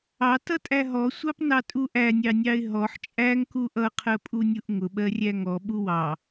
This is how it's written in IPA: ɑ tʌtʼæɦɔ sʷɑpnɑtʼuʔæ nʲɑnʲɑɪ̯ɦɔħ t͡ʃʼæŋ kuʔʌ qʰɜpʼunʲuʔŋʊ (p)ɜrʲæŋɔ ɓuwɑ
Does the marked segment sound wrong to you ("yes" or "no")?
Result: yes